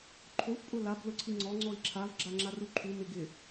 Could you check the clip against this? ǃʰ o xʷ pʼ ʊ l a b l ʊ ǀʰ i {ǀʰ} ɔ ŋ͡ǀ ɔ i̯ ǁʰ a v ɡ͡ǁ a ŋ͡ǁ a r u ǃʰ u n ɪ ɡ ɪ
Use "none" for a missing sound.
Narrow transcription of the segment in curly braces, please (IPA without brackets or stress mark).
ŋ͡ǀ